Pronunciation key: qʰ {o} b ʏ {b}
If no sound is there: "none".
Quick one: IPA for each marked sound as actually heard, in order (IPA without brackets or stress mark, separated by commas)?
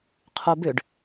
o, ɖ